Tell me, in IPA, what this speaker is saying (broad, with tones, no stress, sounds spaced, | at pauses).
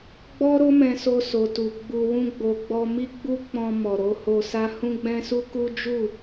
ɡ͡b ɔ˦ ɾ o˦ m ɛ̃˧ s o˧ s o˨ t u˨ ɡ͡b u˧ w ũ˦ ɡ͡b o˧ ɡ͡b ɔ˧ m i˦ ɡ͡b u˦ k͡p ɔ̃˧ m ɔ˨ ɾ o˨˦ h o˧ s a˦ h ũ˦ ɡ͡b ɛ̃˦ s u˦ k u˦ d͡ʒ u˦˨